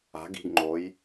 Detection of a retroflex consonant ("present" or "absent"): absent